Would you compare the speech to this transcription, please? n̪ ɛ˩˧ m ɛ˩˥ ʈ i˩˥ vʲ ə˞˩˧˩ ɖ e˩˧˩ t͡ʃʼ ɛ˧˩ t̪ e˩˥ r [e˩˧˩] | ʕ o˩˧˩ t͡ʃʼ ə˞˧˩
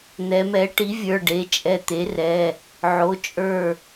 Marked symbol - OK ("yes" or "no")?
no